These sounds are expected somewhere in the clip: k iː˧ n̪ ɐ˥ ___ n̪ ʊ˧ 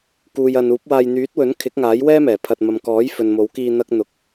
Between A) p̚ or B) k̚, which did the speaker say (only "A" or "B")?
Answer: B